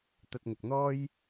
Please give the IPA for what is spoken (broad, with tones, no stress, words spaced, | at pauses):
t̪ɐ˧t̚ŋʊ˨k̚n̪ɔː˥j